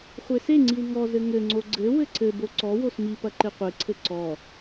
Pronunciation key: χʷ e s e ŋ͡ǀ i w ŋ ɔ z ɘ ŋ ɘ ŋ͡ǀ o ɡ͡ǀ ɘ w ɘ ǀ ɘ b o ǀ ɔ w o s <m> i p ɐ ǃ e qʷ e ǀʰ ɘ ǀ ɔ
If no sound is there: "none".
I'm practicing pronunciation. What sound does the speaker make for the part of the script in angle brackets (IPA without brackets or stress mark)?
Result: m